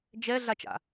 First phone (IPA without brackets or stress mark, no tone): d͡ʒ